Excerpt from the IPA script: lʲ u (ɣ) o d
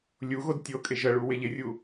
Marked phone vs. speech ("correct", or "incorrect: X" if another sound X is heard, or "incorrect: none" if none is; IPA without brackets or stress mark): correct